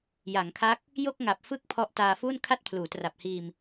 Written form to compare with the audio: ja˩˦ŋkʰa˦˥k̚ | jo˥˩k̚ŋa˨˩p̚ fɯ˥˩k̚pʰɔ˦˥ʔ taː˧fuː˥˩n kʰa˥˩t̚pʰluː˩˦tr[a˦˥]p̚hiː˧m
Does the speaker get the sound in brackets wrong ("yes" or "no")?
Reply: yes